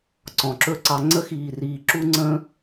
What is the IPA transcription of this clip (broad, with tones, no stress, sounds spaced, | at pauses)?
ǀ ɔ̃˨ ǁ ɵ˦˨ ǀ ɑ˧ ŋ͡ǀ ə˦ x iː˧ r iː˧ ǁ u˦ ŋ͡ǀ ə̃ː˦